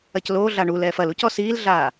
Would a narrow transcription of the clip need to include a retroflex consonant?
yes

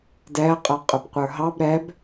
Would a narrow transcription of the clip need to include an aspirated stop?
no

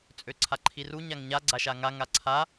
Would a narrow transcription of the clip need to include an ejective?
yes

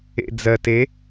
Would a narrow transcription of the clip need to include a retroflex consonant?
no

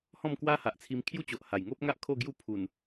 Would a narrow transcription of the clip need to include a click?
no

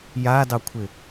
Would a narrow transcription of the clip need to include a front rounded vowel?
no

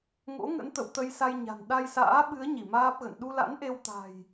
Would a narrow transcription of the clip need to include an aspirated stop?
no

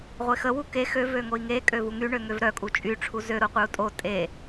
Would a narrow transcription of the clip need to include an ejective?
yes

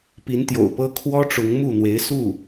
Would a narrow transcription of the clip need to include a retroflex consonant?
yes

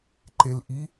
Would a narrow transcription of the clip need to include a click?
yes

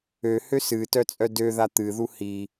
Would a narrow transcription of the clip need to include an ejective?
yes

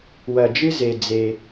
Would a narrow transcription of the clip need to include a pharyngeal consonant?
no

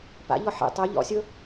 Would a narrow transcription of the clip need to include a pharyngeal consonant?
yes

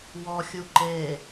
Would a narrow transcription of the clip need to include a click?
yes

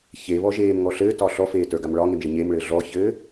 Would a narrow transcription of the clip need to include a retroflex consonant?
yes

